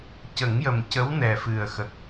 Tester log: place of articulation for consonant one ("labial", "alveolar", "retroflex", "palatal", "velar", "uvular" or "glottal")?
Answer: palatal